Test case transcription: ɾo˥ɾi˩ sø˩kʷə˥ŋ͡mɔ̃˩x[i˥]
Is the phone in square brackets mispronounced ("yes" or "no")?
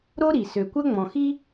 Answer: no